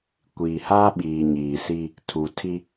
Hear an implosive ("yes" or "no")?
yes